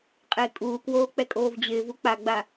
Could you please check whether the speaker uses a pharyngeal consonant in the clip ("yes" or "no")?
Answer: no